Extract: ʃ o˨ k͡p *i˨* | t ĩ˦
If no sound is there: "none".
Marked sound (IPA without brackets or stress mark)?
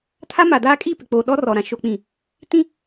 ĩ˨